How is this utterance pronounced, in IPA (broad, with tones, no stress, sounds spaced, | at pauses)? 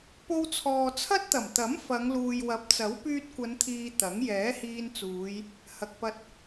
p o˧ w t͡sʰ ɔː˨ t͡sʰ ɐ˥ t̚ t̪ ɐ˨˩ m t̪ ɐ˨˥ m f ɐ˨˧ ŋ l uː˨ j w ɐ˨˥ p̚ t͡s ɐ˨˥ w p yː˧ t̚ kʷ ɐ˨˧ n t̪ʰ iː˨ t̪ ɐ˨˥ ŋ j ɛː˨˥ h iː˧ n t͡s uː˨˧ j | h ɐ˨ k̚ p ɐ˧ t̚